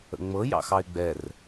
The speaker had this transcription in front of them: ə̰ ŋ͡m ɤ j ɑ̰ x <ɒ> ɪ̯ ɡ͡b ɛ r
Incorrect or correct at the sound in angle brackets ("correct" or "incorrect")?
incorrect